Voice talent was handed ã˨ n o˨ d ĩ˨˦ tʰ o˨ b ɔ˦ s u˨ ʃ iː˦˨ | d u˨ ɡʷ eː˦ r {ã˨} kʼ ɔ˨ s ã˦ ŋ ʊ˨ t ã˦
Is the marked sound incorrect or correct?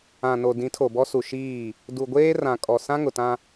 correct